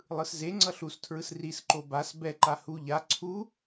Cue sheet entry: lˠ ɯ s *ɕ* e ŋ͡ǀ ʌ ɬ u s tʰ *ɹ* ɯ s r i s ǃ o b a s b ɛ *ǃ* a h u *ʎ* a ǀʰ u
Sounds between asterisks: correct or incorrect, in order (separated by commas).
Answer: incorrect, correct, correct, correct